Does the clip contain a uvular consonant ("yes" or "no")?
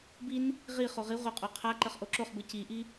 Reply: yes